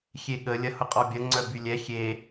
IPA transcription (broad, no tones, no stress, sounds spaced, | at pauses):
xʲ e ɠ ə lʲ ɐ h ʊ qʼ ɔ bʲ ɐ ŋ͡ǀ œ b y lʲ ɛ xʲ e